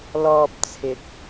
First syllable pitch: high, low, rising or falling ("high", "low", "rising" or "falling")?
low